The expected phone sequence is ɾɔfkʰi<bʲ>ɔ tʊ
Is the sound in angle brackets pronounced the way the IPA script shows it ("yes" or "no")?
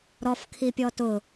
no